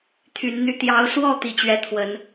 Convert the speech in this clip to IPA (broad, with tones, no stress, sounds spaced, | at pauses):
t̪ʰ y˨˦ n n̪ y˥˨ t̪ j ɑ˨˦ ʊ̯ s w ɔ˥˨ t̪ i˨˦ t͡ɕ ɥ ɛ˨˦ t̪ʰ w ə˨˦ n